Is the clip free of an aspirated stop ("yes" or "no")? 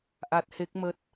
yes